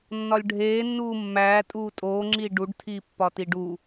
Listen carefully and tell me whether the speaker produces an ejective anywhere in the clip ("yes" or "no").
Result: yes